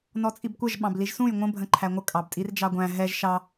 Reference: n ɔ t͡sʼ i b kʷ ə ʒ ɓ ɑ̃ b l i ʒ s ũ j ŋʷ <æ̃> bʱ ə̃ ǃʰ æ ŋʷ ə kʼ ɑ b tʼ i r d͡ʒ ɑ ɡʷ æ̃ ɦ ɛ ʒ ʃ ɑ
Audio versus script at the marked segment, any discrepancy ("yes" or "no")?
yes